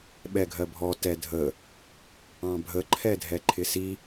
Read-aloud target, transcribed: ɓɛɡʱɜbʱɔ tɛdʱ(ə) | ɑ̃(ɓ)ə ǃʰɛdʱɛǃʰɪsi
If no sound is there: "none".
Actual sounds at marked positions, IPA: ə, bʱ

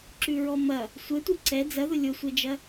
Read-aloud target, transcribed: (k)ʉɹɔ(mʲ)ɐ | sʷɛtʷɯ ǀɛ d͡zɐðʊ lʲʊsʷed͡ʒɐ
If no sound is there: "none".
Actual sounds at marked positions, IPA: ǁ, m

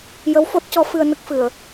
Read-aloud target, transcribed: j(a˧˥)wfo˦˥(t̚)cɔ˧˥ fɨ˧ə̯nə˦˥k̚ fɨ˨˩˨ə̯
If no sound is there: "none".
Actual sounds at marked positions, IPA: ə˧˥, t̚

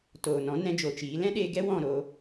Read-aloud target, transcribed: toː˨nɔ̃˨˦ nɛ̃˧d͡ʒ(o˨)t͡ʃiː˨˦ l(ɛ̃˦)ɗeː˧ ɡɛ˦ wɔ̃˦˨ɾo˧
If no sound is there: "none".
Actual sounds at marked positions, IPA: o˨, ɛ̃˦

